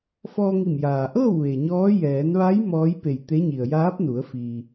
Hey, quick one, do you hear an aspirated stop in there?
no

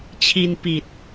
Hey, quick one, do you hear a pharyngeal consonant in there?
no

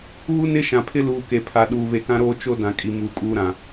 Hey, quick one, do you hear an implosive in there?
yes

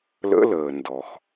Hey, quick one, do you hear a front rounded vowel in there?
no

